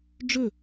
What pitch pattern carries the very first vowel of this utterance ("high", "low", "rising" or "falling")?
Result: falling